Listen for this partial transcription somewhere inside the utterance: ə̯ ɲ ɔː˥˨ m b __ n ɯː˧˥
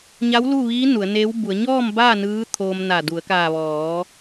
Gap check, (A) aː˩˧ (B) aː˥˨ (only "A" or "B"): B